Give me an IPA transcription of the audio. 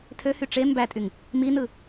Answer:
tʰ ø h y ʈ͡ʂ e m b æ tʼ y ŋ | m i n ɯ

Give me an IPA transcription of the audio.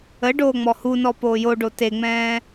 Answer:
ə ɖ oː ŋ͡m ɔ h u n ɔ p oː j o ɖ o t e ŋ͡m ɛ̃ː

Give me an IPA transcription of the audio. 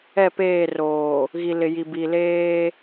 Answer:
ɛ˦˨ p eː˦˨ r oː˨ | ɣ i˨ l ɪ˨ j i˨ b i˨ l eː˦

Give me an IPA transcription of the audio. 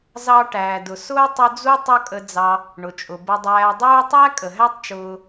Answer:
z ɑ˦ ʈ æː˩ d ʊ˩ s ʊː˥ tˤ ʊ˦ d͡z u˥ tˤ ʌ˦ kʼ ə˨ d͡z ɑ˨ | ɳ ʊ˩ t͡ʃʼ ʊ˩ b ə˨ dˤ æː˨ dˤ uː˦ tˤ æ˥ kʼ ə˩ ɦ æ˥ tˤ t͡ʃ ʊː˨

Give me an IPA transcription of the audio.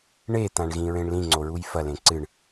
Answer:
ɳ e t̪ ã ɳ ɣ ĩ ɹ ẽ ɳ l ĩ ŋ͡ǀ o ɹ u j f ɐ l ẽ ǀ ɨ ɳ

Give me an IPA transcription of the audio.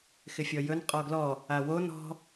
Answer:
x ɪ fʲ ɔ j ɵ n qʼ ɔ ɡ l ɔ | a w o n ɔ̤

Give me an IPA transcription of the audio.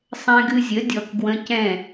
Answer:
sˤ ɛ̃˧ ɡ ɨ˧ zʲ ə˩˥ dʲ ɔ˧ k ɡ w ə̃˧ c ɛ̃˥˩

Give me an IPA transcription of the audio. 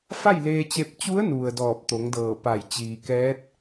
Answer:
f a˥˨ j l eː˧ t͡ɕ e˧ p̚ t͡ɕ u˧˥ ə̯ n u˩ ə̯ d ɔː˧˩ p̚ t̪ o˩˧ ŋ d ɤː˧˩ p a˧˩ j t͡ɕ iː˩ k ɛː˧˥ t̚

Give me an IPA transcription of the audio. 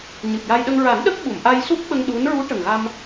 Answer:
ɲ ɨ˨˩ p̚ j a˧ j ɗ ə˧ ŋ ɹ a˨˩˦ n ɗ ə˦˥ k̚ ɓ u˨˩˨ m ʔ a˧ j s u˦˥ p̚ ɓ ə˧ ŋ ɗ u˧˥ n ɹ u˧˥ ʈ ə˨˩ ŋ ɣ a˧ m

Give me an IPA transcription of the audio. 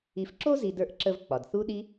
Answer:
i˨ f ǁ o˥ z i˨ d ə˞˨ ʔ ǁ ə˨ v k͡p ɒ˩ d θ u˦ ɗ i˦

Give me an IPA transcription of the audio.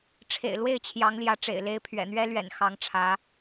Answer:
ʈ͡ʂʰ ḛ˨˩ ɪ̯ l w e˥˩ ɪ̯ t͡ɕʰ j ɑ˧˥ ŋ l j ä˧˥ ʈ͡ʂ ḛ˨˩ ɪ̯ l e˧˥ ɪ̯ pʰ ɥ ɛ̰˨˩ n̪ ɥ ɛ˥ l ɥ ɛ̰˨˩ n x ɑ˧˥ ŋ ʈ͡ʂʰ ä˧˥

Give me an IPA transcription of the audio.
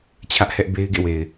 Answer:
t͡ɕʰ ä˦ ʔ h ɛ˦ ʔ b e˦ ɪ̯ ɡ ḛ˦˨ w e˨ ɪ̯

